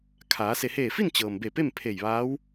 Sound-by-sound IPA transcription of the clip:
kʰaː˩˧ se˩heː˧˩fi˥˨n t͡ɕɤː˩mbe˧˩pe˥˨m pʰe˧˩jʋaː˧˥w

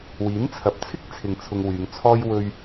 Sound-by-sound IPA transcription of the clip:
wiː˨˥nt͡sʰɐ˨p̚t͡sʰɪ˥k̚ t͡sʰɪ˧ŋt͡sʰʊ˧ŋwyː˨˧ŋt͡sʰɔː˥j wɵ˧ɥ

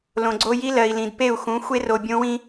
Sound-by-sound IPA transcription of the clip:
lõ˨ɡ͡ǀo˦ ji˦lɜ˨i̯lĩ˨d pe˦˨u̯xũ˨˦ xʷe˦ro˨ bʲõ˦wĩ˦

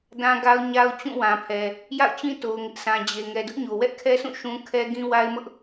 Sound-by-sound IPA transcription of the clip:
dã˦ɡa˦ʊ̯ ɲa˦ʊ̯ t͡ɕũ˦˨wã˨pʰɛ˨ | ja̰˦˨ʊ̯t͡ɕĩ˦ to˦ʊ̯ŋɪ˦ʔsʰã˦ d͡ʑe˨ ŋɛ˨dʊ˦ʔɲo˨ wɛ˦ʔkʰɛ˦sʰũ˦˨ ʃũ˦ kʰɛ˦ ɡĩ˦wa˦ɪ̯mʊ˦ʔ

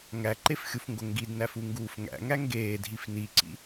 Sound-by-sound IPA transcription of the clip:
ŋæǃefxʲufŋɡo ŋɡidnæfuŋɡuːf ŋæ̰ŋæ ŋɡeːdʱif niǀḭ

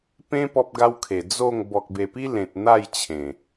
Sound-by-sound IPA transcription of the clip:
pẽ˦ pɔ˦p̚ɡa˦wkʰe˨˩ d͡zo˥˧ŋ bɔ˨k̚be˨˩pi˦ lẽ˨t̚n̪a˥˧j t͡ɕʰẽ˨˩

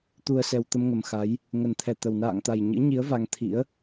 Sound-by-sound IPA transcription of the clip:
t̪u˨˩ə̯sɛ˨˩w t̪ə˧mŋə˨˩m xa˨˦j | ŋə˨˩nt̪ʰɛ˧˩t̪ə˨˩w na̰ː˧˨ŋt̪a˨˩j ɲɨ̰˧˥ɲi˨˦ə̯ va˧ŋt̪ʰḭ˧˥ə̯

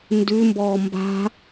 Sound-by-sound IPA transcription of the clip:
ndʉmbɔː mba̤

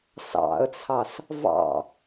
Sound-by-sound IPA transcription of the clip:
sɑ̰ə̯t͡sʰɑs | vɑ̰

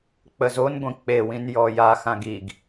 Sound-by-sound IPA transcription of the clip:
k͡pəzonɡʷĩ k͡pewĩn jɔjaxãɡ iɡ

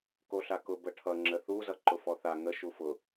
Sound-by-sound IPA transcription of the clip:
koɬakʊ bəʈʰʌ ŋ͡ǁəθu zʌǃʊfɔθa ŋə ʃufʊ

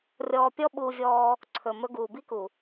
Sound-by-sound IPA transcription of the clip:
rʲɔː˧pʲɔ˦ɓu˧vʲɔː˧ | ǀʰɵ˨ mɵ˧ɡuː˨ bi˦ku˨

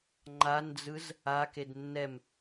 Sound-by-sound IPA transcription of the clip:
ŋ͡ǃand͡zɯz | aked nːɛm

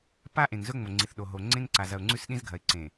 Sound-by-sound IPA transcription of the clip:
pa˦ʔẽ˨ŋ zɵ˦ŋ͡mo˨ŋ͡ǀi˨θɗo˨ ɦo˨ ŋ͡ǀẽ˦ŋ ǀa˨zɐ˨ʊ̯ŋ͡ǀʉ˦s ɗĩ˦zɡʱɐ˨ɪ̯ǀẽ˨

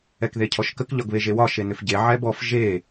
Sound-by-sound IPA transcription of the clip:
ɛkðecʰɔʃkək ʎɒɡβeʒewɒ ʃenʏfɟe ʕɛbɔf ʒe

